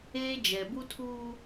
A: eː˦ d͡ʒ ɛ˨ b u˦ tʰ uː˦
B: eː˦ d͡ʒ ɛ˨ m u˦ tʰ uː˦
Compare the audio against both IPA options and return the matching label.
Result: A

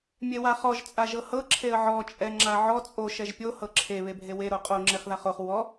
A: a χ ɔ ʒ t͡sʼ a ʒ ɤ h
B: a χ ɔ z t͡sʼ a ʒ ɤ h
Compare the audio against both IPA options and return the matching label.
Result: A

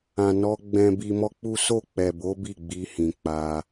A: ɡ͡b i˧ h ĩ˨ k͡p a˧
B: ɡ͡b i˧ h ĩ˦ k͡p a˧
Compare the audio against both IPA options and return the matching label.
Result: A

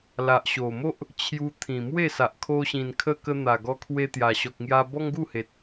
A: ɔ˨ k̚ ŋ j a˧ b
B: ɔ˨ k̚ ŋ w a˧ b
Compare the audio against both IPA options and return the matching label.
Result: A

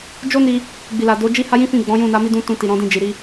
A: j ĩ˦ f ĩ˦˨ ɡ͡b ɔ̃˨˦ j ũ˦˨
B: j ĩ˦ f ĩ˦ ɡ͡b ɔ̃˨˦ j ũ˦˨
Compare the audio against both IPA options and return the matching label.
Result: A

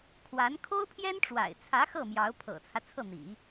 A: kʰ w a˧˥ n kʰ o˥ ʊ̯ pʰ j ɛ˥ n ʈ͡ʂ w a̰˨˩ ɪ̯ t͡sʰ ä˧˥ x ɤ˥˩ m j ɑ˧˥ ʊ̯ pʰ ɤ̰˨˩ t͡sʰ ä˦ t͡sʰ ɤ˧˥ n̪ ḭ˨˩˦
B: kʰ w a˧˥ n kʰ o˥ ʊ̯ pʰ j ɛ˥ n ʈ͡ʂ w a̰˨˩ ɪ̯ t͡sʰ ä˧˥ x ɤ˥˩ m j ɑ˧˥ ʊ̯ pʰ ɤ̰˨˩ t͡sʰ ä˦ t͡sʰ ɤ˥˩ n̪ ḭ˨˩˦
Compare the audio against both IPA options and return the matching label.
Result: B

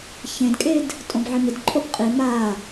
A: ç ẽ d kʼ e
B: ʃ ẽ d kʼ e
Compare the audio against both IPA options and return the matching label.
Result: A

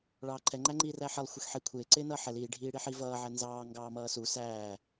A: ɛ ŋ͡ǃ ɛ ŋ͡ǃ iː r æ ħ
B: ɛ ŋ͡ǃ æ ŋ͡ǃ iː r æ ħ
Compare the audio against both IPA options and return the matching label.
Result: B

